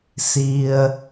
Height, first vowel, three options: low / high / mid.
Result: high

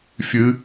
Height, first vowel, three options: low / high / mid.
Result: high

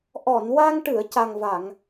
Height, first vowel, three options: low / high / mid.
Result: mid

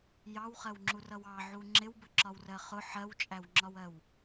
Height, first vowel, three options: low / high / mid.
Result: low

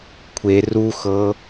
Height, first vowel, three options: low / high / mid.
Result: mid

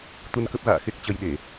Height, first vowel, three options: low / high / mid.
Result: high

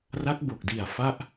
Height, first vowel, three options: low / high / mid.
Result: low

